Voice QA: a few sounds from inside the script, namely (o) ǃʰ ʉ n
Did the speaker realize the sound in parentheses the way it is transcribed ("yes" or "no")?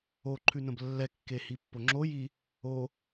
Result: yes